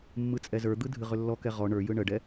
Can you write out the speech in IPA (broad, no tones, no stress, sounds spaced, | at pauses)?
mː ɯ t͡sʼ ɛ z ə˞ d̪ ɯ dʱ ɨ ʁ ʏ lː ɔ k ɛ ʁ ɔ ɳ ə˞ j ɯ ɳ ə ɖ ɛ